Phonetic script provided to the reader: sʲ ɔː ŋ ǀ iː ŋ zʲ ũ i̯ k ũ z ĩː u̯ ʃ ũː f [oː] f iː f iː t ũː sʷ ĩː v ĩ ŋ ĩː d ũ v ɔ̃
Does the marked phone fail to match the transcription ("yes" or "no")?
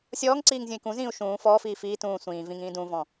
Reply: yes